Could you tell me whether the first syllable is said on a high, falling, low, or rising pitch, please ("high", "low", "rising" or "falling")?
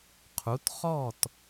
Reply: rising